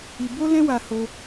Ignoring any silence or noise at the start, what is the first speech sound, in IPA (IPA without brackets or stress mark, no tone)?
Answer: i